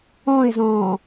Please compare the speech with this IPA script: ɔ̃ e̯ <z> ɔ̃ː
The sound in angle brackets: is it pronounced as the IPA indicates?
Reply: yes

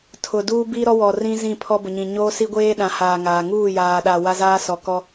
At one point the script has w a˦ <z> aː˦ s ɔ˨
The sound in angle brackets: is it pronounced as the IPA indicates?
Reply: yes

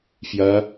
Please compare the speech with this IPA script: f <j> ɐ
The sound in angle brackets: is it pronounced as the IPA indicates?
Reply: yes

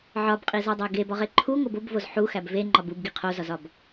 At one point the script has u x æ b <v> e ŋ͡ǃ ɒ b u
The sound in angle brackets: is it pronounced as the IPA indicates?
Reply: yes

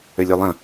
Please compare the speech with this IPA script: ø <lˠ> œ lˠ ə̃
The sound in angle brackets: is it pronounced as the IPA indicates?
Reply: no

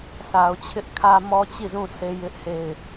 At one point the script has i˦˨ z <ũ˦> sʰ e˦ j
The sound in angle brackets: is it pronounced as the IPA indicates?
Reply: no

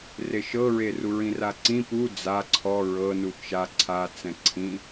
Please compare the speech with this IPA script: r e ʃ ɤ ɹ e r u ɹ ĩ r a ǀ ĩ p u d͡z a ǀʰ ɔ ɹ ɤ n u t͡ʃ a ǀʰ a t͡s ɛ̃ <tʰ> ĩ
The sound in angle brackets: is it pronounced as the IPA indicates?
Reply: no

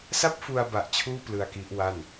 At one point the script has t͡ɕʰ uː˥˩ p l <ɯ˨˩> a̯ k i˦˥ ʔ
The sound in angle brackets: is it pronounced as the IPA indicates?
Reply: no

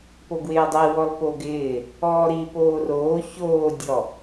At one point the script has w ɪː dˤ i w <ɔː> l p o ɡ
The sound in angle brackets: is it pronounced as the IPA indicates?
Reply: no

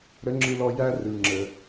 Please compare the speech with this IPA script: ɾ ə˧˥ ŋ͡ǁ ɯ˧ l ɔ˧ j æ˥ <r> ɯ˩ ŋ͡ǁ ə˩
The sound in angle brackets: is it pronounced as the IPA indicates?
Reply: yes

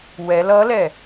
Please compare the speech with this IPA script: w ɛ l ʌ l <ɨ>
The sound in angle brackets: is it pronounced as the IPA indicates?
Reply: no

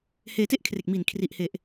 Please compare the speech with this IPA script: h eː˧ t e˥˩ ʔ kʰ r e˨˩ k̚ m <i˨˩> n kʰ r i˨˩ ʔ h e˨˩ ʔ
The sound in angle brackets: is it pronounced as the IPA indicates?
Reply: yes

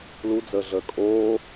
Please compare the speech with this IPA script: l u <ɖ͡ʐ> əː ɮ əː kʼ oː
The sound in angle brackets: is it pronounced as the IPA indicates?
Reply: no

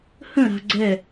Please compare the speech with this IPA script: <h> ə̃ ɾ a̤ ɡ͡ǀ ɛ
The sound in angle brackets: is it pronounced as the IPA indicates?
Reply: yes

